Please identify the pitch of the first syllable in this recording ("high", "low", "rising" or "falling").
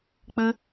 high